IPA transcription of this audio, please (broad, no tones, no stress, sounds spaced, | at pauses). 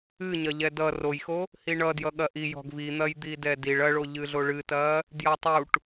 ɨ ɲ ɐ ʎ ɛ d ʌ r o j x o | h i ɳ ʌ d j ʌ ɠ ɐ ʔ i j ɔ̤ ɡ v i n̪ ɐ j d̪ i d ɛ d i ɭ ɐ ɭ o ʎ ɨ ɮ o ɭ ɨ t ɐ | d j ʌ tˤ u ʈ